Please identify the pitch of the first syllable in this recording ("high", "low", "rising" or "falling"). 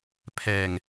low